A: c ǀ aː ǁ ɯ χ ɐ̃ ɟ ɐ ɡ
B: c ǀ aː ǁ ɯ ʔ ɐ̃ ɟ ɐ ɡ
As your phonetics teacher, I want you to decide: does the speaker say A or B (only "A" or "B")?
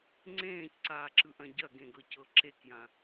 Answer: B